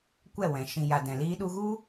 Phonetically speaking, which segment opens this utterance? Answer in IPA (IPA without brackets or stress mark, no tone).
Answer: kʷ